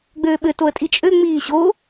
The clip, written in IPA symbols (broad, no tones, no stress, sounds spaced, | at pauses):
ɡ͡b øː ɓ ɘ t o ə̯ tʼ i t͡ʃʼ ø ŋ͡m iː ɕ o